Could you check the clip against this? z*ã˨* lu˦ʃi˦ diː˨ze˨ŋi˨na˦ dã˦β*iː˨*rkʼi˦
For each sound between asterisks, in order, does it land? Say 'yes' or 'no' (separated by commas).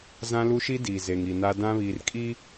no, yes